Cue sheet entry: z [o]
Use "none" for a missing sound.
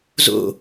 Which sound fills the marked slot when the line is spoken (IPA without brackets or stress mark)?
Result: o̰